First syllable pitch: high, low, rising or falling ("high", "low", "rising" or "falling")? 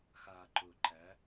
low